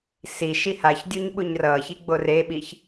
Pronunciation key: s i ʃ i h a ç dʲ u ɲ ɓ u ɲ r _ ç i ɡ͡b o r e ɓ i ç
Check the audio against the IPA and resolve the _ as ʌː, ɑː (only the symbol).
ʌː